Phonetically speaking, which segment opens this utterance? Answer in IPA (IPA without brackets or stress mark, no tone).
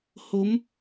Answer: h